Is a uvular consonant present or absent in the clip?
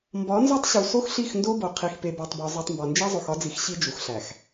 present